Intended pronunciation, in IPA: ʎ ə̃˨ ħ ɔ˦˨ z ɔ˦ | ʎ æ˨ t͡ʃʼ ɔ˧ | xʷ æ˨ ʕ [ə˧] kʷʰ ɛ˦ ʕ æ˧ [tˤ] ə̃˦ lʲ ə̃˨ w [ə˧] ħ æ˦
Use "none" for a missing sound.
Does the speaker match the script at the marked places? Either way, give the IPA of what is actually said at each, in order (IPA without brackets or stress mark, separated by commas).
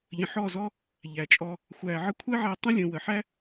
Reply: ə˧, tˤ, ə˨